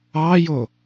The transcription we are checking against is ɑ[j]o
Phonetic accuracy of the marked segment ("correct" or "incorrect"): correct